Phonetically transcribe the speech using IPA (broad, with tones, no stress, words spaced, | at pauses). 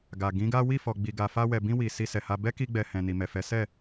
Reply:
ɡa˨ ɡĩ˨˦ɡa˦ wi˦˨fɔ˨ɡ͡bi˨ɡa˨ fa˧ wɛ˨bĩ˧ wi˨ si˧sɛ˨ha˧ bɛ˦ki˧ɡ͡bɛ˨ hɛ̃˨ni˨mɛ˨fɛ˨˦ sɛ˦˨